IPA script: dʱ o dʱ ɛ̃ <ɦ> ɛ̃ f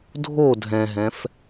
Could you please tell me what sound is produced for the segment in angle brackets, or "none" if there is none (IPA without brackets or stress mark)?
ɦ